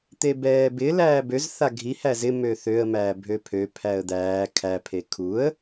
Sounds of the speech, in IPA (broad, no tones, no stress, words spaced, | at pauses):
t̪ebɛːbɪ læːbøz θaɡʱi hæzɪ møθøə̯ mæːbʱøpʰø pʰæə̯d̪æː kʰæ pʰekʰuə̯